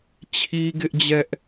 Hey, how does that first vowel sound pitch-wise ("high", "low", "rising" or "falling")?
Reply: high